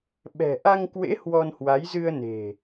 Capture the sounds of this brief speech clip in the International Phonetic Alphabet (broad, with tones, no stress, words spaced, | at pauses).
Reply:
ɓɛ̤˨˩ ʔa˧ŋkwḛ˧˥ hwɔ˧nhwa˨˦j zɨ˧ə̯ ne̤˨˩